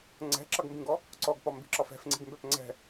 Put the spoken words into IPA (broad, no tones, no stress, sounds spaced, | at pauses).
ŋ͡ǀ ɛ̤ ǁ ʌ ɡ m b ĩ ɡ ɔ | ǀ ɔ ɡ p ɒ m b i̤ ǁ ɒ f ɛ̤ f ŋ͡ǀ i̤ ɡ m b ɛ p ŋ͡ǀ ɛ̤